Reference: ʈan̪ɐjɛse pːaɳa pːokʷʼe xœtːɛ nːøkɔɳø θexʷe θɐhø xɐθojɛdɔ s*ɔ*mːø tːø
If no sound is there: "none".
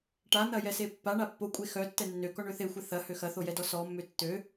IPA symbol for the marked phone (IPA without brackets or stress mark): ɔ